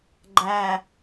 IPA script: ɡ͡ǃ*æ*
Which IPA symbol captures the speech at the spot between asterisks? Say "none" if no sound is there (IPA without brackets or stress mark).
æ